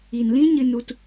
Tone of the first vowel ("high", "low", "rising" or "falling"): low